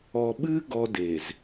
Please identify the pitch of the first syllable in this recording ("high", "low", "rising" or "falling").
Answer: low